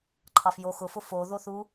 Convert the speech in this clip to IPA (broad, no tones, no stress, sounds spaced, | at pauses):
ǃʰ ɑ f j o x ʊ f ʊ f o ð o θ u